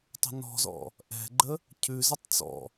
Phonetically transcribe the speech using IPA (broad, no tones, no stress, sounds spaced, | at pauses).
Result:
tˤ ə̤ n ɔ̤ z ɔ̰ | ʔ ɛ̤ ɡ͡ǃ ə | cʰ ʉ z ə tˤ t͡s ɔ̰